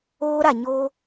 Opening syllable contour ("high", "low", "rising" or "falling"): high